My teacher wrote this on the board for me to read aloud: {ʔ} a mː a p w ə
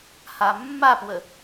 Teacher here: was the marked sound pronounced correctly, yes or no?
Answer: no